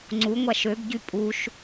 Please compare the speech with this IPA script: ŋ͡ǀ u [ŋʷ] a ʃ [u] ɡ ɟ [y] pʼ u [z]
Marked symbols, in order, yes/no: yes, no, yes, no

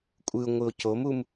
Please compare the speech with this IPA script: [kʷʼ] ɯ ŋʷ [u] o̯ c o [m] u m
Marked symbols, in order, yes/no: yes, no, yes

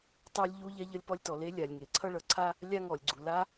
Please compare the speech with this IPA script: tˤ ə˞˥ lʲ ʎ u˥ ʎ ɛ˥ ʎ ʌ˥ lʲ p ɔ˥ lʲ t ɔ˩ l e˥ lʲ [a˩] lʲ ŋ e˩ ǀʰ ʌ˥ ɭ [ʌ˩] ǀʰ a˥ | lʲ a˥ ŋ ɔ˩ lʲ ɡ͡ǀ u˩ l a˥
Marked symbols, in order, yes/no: yes, yes

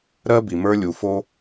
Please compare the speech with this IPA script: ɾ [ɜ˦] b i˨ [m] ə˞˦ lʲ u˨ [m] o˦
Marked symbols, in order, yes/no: yes, yes, no

